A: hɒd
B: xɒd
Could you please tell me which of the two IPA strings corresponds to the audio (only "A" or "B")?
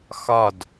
B